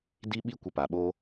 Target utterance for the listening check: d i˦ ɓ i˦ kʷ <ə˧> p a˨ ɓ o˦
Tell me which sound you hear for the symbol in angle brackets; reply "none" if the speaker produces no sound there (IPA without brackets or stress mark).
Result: ə˧